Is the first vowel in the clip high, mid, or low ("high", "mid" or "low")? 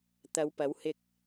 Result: low